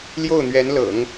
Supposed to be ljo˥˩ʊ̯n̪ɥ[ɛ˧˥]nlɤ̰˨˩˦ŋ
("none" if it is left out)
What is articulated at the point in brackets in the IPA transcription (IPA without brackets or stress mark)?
ɛ˧˥